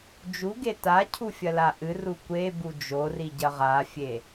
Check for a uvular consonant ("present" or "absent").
present